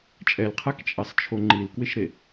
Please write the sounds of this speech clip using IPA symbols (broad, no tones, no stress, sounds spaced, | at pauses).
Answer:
t͡ʃʼ ɛ l qʰ a k t͡ʃʼ ɛ sˤ t͡ʃʰ o ŋ͡ǃ i l k w ɪ ʃ ɾ e